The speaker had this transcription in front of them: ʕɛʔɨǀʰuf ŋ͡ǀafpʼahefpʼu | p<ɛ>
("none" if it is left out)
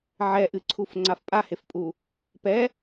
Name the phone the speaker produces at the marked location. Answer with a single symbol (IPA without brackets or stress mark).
ɛ